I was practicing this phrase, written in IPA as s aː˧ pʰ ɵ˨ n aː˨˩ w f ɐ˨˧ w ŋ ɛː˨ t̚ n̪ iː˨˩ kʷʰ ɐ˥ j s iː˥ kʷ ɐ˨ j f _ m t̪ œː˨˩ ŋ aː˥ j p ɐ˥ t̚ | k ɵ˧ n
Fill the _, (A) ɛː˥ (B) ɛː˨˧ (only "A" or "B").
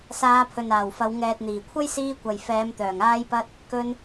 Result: B